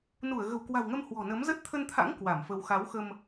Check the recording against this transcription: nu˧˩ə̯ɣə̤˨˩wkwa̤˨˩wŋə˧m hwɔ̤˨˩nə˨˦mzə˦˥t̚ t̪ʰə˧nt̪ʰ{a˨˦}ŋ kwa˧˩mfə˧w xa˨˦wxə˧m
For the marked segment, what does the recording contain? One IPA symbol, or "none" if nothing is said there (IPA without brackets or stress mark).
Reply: a̰˧˥